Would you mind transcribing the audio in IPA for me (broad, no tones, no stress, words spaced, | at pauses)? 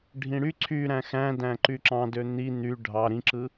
ɖʱĩɽy ǀʰy ɾæ̃xæ̃dæ̃ ǃyǁɑ̃dø n̪i n̪y ɖʱɑ ɾĩǁɯ